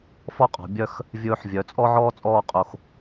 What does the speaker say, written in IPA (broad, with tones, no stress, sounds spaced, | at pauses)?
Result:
f ɔ˥˧ qʼ ɔ̤˩˧ bʲ œ˥˧ x | vʲ ɵː˧ ħ vʲ œ˩˧ t͡sʼ ɔ˥ ʕ ɔː˥ t͡sʼ ɔː˥˧ qʼ o˧ x